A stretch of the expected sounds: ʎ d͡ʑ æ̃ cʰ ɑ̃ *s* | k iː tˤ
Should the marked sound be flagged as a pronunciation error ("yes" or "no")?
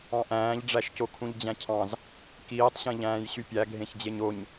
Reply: yes